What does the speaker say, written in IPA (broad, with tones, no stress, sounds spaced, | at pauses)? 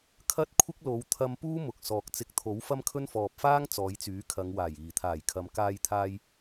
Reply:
kʰ ɐ˥ t̚ kʷʰ ɪ˥ k̚ l o˨˧ w t̪ʰ ɐ˧ m p uː˥ m ʊ˨ k̚ s ɔː˨ k̚ t͡s ɪ˨˥ k̚ t̪ʰ o˨˥ w f ɐ˥ m kʰ ɵ˥ n f ɔː˨ p̚ f aː˥ ŋ t͡s ɔː˨˧ j t͡s yː˨˥ kʰ ɐ˨˧ ŋ w aː˨˩ j iː˨˩ t̪ʰ aː˨˩ j kʰ ɐ˨ m k aː˧ j t̪ʰ aː˧ j